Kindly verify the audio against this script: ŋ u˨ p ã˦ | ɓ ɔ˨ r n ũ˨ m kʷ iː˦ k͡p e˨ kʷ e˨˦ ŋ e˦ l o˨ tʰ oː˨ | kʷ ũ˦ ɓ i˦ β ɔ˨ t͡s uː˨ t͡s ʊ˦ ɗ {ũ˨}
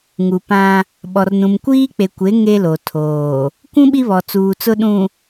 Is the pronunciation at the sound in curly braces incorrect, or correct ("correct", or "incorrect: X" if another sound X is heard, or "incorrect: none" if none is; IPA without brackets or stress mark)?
correct